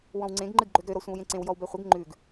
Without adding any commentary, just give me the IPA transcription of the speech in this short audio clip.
wɔ̃wŋ͡ǀẽɡ ŋ͡ǃɨɡɡ͡ǃøɡɾø ɾɔsʷẽwjẽǀẽw jɔwbɛχʷəɡ ŋ͡ǃʉɡ

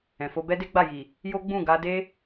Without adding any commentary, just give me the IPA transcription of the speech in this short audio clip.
ɛ̃˨fo˧ bɛ˦de˦ɡ͡ba˦˨ji˨ | jo˦ɡ͡bũ˦˨ ɡa˧ de˦

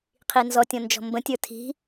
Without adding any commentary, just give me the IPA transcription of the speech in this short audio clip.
qʰinzɔ tʲɔ̃nd͡ʒɔ̤mbə̃ tʲə˞tʰi̤

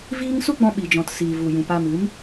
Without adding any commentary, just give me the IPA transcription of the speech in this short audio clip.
viː˦ŋ su˦ɡ͡bɔ̃˧ɓi˨d͡ʒɔ̃˨t siː˨vu˨ jũ˨pa˧mɨ˨˦m

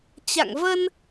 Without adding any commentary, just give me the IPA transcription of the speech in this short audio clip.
t͡ɕa̰˧˨ŋvə˧n

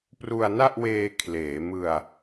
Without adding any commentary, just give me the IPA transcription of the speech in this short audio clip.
pru˧a̯na˥˩ʔweː˧ kʰleː˩˦mɯ˧a̯

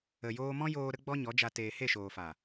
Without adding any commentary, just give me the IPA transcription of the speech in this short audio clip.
ə˨joː˧mɔ̃˦joː˧ ɾə˦ɡ͡bɔ˦ ɲɔ˨˦d͡ʒa˧ teː˨he˦˨ʃoː˨fa˨

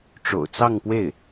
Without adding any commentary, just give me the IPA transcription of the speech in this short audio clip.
ʈ͡ʂo̰˨˩ʊ̯t͡sɑ˥˧ŋpwe˥˩ɪ̯

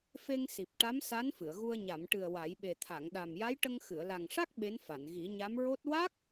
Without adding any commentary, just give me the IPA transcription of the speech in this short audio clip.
fe˧ŋsi˨˩p̚ ʈa˧˥msa˧˥n fɨ˨˩˨ə̯ɣu˧ə̯ ɲa˨˩˨mʈɨ˨˩ə̯ wa˨˩˦jɓe˨˩ t̪ʰa˨˩˨ŋɗa˨˩mja˧˥jʈə˧ŋ xɨ˨˩˨ə̯la˨˩ŋʂa˦˥k̚ ɓe˧˥nfa˨˩˨n ɣi˨˩˦ɲa˧˥m ɹo˦˥t̚ wa˦˥k̚

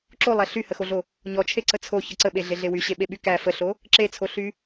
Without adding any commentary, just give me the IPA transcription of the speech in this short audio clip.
ǁolˠæ ɬyhəxoɮo | ɲɔt͡ʃʰeǀə t͡sʰoçə ǀəɓeɮeɮe wyɕeɓeɓy kæ fəɬo | ǁet͡sʰoɬy

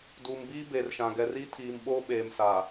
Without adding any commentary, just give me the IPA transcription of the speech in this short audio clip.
duː˨mbiː˦ beː˨rʃã˨ɡɛ˨riː˦ tʰiː˨mɓoː˦ ɓeː˨msa˨

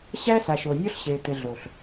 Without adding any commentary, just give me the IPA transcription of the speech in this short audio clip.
ɕæ˦ sa˨ʃo˨nʲɔ˦ɬɕe˨ tɘ˨ɮo˨ɬ

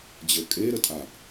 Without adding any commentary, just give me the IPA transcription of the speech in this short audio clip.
d͡ʑə˞kʼe ɾətʼaʔ

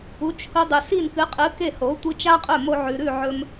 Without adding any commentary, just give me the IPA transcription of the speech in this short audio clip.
u˩˥t͡ʃhu˧ dˤʉ˩si˥˩nkɨ˩˥qʼɨ˩˥ ke˥˩ho˩˥ tʷi˧t͡ʃa˥qʼɵ˥˩mo˧ ʕʉ˩ɾʉ˥˩ ʕɵ˧m

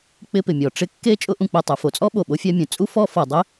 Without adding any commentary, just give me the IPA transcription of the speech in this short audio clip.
k͡pɪ˦pɪ˩mʲɔ˩ ʈ͡ʂɪ˦ kːe˥ t͡ʃʼʊ˦ʔũ˨k͡pe˨ tˤu˩ fo˨t͡sʼɔ˥ ɓo˩ɓo˦fʲa˦ mʲũ˩t͡sʼu˥ fɔ˦ fɔ˨ dˤɪ˥

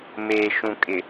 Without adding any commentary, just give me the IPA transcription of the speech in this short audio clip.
meː˨ʃũ˨ kʼɪ˨

